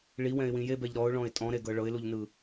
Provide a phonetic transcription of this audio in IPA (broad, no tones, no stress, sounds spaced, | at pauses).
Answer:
ɭ i w ɛ̃ ɪ̯ w ĩ j e b ɛ ʎ ɾ ɔ ʊ̯ ɭ ɔ̃ ɪ̯ tʼ ɔ̃ ɾ e ɡ ɤ ɭ ɤ ɪ̯ l u ʎ n ɯ